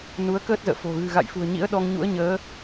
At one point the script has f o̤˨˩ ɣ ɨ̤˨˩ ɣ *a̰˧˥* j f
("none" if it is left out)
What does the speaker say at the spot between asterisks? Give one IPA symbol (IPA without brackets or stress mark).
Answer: a̰˧˨